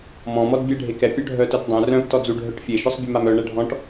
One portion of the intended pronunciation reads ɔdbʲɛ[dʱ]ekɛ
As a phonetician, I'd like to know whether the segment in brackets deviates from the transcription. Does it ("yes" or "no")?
yes